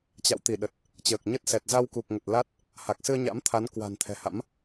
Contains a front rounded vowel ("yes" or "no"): no